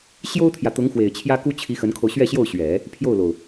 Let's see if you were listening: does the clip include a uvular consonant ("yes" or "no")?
no